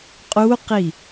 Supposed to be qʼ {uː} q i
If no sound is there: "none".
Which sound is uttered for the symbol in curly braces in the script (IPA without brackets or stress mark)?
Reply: u